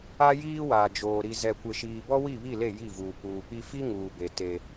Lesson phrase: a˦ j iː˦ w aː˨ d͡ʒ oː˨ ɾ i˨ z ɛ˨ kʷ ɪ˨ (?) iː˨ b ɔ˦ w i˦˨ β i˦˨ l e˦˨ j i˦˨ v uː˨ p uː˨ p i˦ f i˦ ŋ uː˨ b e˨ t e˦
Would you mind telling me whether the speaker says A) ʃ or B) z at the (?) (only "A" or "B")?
A